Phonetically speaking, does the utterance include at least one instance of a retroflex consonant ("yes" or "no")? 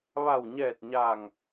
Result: no